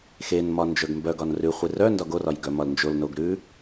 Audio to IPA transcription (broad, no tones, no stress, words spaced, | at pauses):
xenmɒ nd͡ʒœɡmbœɡɒn rʉχʷi rœ ndɒɡorɒj ɡœmɒlnd͡ʒolnoɡ ɾʉ